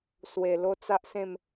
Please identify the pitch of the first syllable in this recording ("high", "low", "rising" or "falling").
low